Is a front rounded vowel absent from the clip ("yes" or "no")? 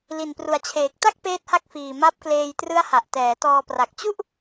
yes